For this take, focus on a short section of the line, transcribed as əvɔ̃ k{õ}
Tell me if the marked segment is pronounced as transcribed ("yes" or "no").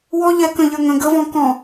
no